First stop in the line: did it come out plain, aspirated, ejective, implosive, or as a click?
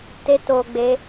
plain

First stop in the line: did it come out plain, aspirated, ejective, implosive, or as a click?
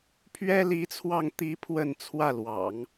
aspirated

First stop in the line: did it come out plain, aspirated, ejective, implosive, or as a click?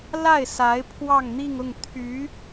aspirated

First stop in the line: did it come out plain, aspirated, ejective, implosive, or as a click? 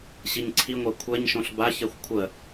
click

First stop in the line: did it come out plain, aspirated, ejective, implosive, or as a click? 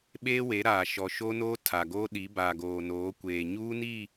implosive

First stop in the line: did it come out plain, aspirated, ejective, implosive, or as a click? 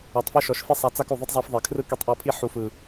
plain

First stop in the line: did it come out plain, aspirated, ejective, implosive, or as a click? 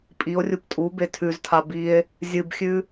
ejective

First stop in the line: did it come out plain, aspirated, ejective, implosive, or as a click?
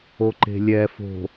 click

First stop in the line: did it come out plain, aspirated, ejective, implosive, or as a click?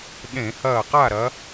implosive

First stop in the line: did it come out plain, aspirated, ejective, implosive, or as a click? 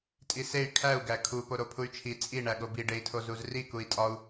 ejective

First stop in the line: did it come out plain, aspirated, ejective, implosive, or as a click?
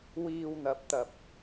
plain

